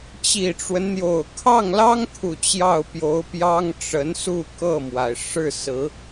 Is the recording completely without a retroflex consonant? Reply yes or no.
no